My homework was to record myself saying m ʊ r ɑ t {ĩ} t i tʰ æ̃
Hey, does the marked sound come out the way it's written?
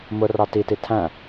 no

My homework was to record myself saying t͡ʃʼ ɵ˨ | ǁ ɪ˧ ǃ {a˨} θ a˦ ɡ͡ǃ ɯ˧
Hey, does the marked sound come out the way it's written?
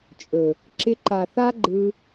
yes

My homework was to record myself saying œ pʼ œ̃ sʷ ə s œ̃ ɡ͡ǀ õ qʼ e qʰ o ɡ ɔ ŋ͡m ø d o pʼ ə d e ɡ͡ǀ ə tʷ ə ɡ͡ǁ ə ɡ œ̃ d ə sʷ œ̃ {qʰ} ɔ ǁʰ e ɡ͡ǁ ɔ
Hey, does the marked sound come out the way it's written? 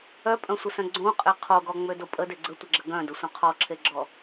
yes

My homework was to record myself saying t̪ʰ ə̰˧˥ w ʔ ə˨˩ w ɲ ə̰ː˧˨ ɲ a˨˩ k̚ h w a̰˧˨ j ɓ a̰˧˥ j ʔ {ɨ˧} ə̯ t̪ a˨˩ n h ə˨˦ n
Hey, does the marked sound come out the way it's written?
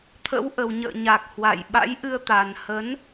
yes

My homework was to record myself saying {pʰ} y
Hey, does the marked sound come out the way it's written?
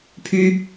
yes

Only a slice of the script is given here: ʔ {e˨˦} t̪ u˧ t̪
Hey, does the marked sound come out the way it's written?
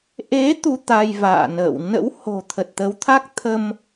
yes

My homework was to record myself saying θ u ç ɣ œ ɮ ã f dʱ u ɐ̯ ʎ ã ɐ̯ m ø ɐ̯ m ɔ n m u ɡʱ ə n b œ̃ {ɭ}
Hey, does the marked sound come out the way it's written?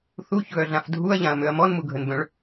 yes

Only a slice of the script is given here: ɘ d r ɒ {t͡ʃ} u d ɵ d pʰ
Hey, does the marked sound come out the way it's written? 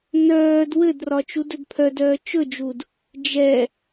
yes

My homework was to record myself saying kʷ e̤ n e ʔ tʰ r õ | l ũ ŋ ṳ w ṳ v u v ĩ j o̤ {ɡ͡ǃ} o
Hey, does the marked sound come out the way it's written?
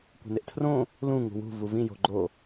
yes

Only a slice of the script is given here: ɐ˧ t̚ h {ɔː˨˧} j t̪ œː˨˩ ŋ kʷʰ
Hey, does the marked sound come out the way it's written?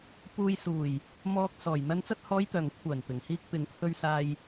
yes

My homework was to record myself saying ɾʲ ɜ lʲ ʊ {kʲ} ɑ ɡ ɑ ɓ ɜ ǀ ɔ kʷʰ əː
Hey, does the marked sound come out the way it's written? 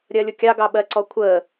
yes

